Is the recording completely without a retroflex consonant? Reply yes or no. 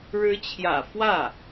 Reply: no